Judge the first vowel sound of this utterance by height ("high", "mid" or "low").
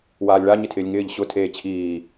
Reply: low